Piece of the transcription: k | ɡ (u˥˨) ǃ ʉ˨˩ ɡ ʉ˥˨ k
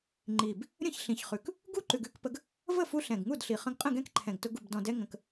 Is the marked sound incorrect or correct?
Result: correct